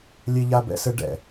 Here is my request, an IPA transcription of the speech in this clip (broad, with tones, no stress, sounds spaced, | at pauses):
lʲ e˧ ʎ a˧ b ɛ̰˧ s ɘ˧ ɖ ɛ̰˨